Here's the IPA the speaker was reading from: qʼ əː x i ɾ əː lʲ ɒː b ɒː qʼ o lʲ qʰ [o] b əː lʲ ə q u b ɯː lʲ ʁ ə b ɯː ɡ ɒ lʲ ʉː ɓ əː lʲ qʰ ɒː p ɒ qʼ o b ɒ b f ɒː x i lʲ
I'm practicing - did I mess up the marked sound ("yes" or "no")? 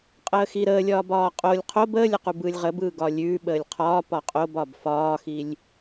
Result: no